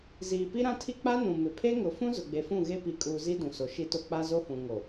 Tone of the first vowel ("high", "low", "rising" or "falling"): low